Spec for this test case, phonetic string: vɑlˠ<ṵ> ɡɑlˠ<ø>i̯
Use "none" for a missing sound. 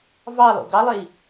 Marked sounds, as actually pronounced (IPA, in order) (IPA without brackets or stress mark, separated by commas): ṵ, e